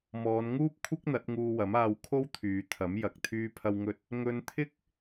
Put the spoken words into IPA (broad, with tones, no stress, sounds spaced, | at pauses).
m ɔː˨˧ n ŋ uː˥ p̚ kʷʰ ɪ˥ k̚ n̪ ɐ˨˥ t̚ ŋ uː˧ w ɐ˨˥ m aː˧ w kʰ o˥ w t̪ʰ yː˨˧ t̪ʰ ɐ˨˥ m j ɐ˨ k̚ t̪ʰ yː˥ pʰ ɐ˥ w ŋ ɵ˥ t̚ | ŋ ɵ˧ n t̪ʰ ɪ˥ k̚